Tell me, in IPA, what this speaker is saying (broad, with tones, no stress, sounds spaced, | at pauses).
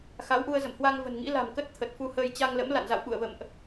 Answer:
x a˨˦ w ʔ u˧ ə̯ z ə̰˧˨ m h w a˧ ŋ v ə̤˨˩ n ŋ ḭ˧˥ l a̤˨˩ m k ə˦˥ t̚ t̪ʰ ə˨˩ t̚ f u˧ h əː˧ j t͡ɕ a˧ ŋ l ə̰˧˥ m l a̰˧˨ n z a̰˧˨ w ɓ ṵ˧˨ ə̯ v ə̰˧˨ m ʔ